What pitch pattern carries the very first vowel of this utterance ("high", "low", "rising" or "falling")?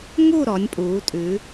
falling